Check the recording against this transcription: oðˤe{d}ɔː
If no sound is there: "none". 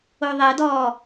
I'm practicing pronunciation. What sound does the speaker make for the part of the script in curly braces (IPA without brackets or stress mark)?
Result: d